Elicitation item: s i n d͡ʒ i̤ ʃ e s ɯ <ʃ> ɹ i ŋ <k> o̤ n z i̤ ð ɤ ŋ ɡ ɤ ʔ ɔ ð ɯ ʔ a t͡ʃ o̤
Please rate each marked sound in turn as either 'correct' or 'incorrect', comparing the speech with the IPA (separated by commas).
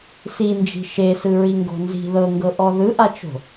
incorrect, incorrect